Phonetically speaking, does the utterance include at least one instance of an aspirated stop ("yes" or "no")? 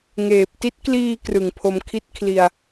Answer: yes